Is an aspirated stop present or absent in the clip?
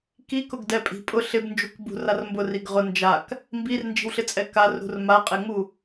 absent